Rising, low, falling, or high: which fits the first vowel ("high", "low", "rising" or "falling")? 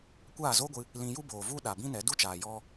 falling